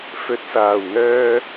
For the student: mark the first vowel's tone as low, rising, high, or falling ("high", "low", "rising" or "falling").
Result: low